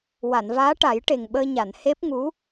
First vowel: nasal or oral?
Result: oral